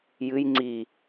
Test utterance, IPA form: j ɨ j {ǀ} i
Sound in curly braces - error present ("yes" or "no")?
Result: yes